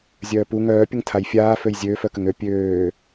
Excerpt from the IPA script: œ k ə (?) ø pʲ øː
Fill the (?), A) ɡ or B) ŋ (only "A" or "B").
B